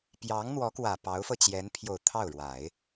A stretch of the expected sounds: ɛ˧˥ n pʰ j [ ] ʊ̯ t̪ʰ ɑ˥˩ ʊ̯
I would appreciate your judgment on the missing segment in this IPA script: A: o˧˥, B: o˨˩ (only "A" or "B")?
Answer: B